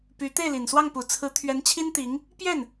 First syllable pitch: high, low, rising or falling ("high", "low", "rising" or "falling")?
rising